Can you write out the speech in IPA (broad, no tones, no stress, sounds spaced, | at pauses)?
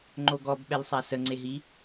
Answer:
ŋ͡ǃ o ɡ ɔ b ɓ ɛ l sˤ a s ə ŋ͡ǀ e ɦ i